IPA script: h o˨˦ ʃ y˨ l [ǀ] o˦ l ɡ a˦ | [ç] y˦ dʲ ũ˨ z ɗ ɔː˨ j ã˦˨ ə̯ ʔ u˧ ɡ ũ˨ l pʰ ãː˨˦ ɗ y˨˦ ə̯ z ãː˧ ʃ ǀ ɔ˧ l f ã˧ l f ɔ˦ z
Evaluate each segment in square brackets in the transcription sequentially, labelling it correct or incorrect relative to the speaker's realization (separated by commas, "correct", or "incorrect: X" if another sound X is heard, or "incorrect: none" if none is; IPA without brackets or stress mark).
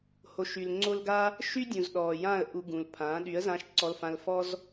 incorrect: ŋ͡ǀ, incorrect: ʃ